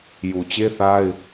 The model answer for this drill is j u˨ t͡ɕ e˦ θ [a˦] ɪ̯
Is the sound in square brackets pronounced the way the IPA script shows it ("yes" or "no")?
yes